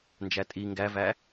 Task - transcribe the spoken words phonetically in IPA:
n d͡ʒ æ tʼ i ŋ ɡ æ v æ

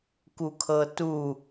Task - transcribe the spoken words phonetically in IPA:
k u kʰ ɤ t u

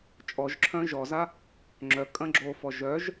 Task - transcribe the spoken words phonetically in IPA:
t͡ʃʼ ɔ ʒ ǁʰ œ̃ ʒ ɔ z a | ŋ͡ǁ œ kʼ ɐ̃ ɡ͡ǁ o f ɔ ʒ œ ʒ

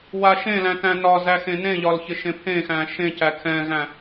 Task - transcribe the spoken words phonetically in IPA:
w a ʃ ẽ l æ̃ t æ̃ n ɒ z æ x ẽ n ẽ ʎ ɒ l ç ɪ ʃ ẽ pʰ ẽ x æ̃ ʃ ẽ c æ kʰ ɛ̃ ɣ æ̃

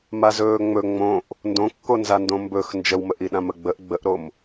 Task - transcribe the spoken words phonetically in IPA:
m a z ɵː ŋ͡m ɵ ŋ͡m õ ʔ | n d õ kː o n z a n d õ m b ɵ x n d͡ʒ ə w m ə ʔ i ɗ ã m ə ɡ͡b ə ʔ ɡ͡b ə ʔ ɾ o m

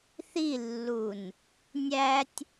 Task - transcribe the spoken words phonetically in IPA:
θ i lː u n | nʲ æ tʲ

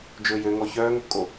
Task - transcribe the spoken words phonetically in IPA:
d͡ʒ ɵː j ø ŋ ɔ ç œː ŋ o p kʼ o

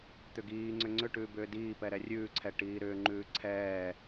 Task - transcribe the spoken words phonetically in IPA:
t̪ ʏ ɡ iː ŋ͡ǀ ʏ ŋ͡ǀ ʏ ʈ ʉː b ʏː d iː p ɛ ɾ ɛ rʲ ʉː ǀʰ ɛ ʈ iː ɾ ʏː ŋ͡ǃ ʉː ǀʰ ɛː

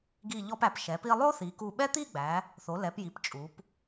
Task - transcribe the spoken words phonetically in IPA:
ɡ i˧˩ ʎ ɔ˧ p æ˩˧ p ʃ ɛ˩˧ p i˧ lˠ o˥ θ i˩˧ k u˧˩ ɓ ɛ˥ t̪ i˥˧ ɡ͡b æ˩˧ | θ o˩˧ l ɛ˩˧ p j i˩˧ p t͡ʃʼ u˩˧ p

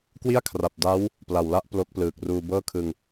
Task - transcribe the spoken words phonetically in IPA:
k w i˥˩ a̯ kʰ r a˨˩ p̚ d a˦˥ w | p l a˨˩ w l a˥˩ ʔ p l o˦˥ k̚ p l ɯː˨˩ k̚ r uː˧ b ɤː˥˩ kʰ ɯ˧ ŋ

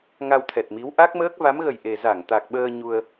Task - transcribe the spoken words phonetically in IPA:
ŋ a˧ w t̪ʰ ɛ˨˩ t̚ m i˨˦ w ʔ a˦˥ k̚ m əː˦˥ k̚ v a˨˦ m ɣ ə˨˩ j ʔ e˨˩ z a˧˩ ŋ t̪ a˨˩ k̚ ɓ əː˧ ɲ u˧ ə̯

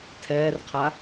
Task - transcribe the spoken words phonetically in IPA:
tʰ ɛː r qʰ a

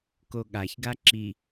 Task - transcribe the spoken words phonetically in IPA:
k o ɠ a ç ɡ a ǁ i

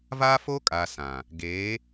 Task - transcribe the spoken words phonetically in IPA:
v aː˦ f oː˦ kʼ aː˨ s ã˨ | ɡ eː˨˦

